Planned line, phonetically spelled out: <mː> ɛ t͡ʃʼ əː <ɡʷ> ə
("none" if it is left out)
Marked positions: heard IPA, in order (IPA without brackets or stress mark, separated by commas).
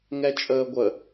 ŋ, ɡʷ